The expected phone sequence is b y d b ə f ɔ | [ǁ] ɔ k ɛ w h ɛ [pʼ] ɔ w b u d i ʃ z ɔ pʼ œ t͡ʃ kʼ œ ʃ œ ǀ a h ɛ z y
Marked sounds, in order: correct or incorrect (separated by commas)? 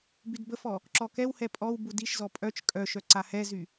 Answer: correct, correct